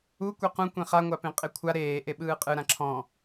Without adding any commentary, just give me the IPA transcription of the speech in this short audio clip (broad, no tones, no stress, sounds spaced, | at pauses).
u kʷ e q ũ kʷ ẽ χ a ŋʷ a p ẽ qʼ e kʷʰ a ɾ eː ʔ e ɓ ɯː qʼ ɯ ɾ ã ǁʰ ɔ̃